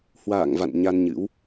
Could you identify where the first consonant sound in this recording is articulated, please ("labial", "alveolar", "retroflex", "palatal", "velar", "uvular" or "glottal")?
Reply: glottal